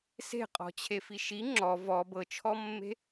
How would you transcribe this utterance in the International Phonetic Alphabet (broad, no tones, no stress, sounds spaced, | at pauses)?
s e̤ qʼ ɔ̤ t͡ɕʰ e f i ʃ i ŋ͡ǁ ɔ v ɔ b ɤ t͡ʃʰ ɔ mː e̤